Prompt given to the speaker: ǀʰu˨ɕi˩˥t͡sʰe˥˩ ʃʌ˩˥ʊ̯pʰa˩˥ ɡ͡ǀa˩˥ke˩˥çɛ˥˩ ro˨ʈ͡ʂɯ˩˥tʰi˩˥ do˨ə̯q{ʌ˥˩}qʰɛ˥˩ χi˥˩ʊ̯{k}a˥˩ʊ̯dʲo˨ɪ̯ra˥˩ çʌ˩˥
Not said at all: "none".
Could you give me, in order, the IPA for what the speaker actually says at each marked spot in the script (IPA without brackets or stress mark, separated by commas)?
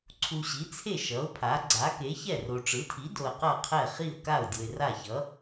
ʌ˥˩, k